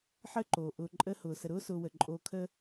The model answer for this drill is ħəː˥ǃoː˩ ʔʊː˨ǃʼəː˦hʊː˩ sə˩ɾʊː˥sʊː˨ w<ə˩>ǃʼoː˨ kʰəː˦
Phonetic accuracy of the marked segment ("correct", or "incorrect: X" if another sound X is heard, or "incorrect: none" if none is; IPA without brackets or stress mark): correct